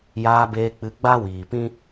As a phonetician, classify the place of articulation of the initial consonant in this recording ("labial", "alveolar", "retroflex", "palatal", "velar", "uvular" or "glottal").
palatal